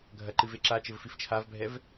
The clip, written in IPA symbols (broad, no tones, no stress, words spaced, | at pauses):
ɡʱɐǃɨv eǁat͡ʃɘv fift͡ʃʰavbʱɛv